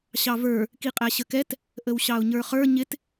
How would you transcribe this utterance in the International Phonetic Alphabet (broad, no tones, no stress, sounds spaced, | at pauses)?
ɕ ɑ v ə˞ | k i qʼ æ ɕ ə k ɛ t | ʔ ə w ɕ ɑ ʊ̯ ɲ ə˞ χ ə˞ ɲ ɪ t